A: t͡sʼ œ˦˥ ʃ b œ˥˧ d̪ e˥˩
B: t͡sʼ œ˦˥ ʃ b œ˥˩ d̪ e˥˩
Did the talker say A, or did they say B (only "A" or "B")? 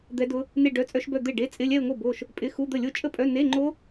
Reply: A